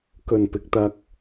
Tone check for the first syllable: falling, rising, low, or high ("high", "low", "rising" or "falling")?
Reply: low